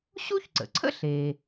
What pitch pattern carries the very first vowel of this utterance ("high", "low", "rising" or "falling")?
high